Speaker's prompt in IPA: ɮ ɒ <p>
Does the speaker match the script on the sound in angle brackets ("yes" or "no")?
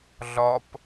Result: yes